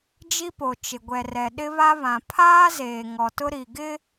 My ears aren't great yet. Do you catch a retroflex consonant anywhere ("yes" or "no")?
no